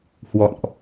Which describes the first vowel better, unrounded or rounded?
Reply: rounded